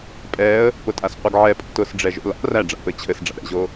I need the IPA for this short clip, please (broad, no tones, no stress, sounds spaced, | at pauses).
pʼ ɛ ə̯ | p ʊ tʼ a s qʷ ɘ ɡ ʕ ɛ pʼ o̰ t ʊ s ɖ͡ʐ ɛ ʒ o̰ l a̰ r æ ɖ͡ʐ a̰ p ɘ t͡ɕʰ ɘ s ɖ͡ʐ a̰ ɾ ɛ̰ ʑ o